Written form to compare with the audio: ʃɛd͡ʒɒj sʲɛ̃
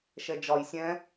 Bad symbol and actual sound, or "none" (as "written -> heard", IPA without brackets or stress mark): none